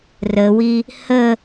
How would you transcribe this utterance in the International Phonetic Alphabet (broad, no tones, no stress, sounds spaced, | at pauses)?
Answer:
r ə w i | h ə